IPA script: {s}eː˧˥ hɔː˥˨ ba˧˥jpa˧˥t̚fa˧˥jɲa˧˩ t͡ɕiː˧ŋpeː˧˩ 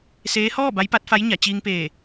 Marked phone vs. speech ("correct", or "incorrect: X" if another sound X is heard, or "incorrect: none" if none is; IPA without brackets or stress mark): correct